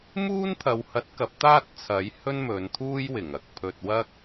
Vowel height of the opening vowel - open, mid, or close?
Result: close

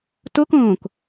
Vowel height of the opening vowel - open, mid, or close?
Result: mid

